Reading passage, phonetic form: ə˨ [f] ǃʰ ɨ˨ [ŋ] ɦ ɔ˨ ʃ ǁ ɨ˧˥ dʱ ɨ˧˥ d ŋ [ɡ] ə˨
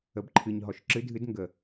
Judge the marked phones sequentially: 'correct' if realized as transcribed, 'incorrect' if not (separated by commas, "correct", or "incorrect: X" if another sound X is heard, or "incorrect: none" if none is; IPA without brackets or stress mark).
incorrect: b, incorrect: ɲ, correct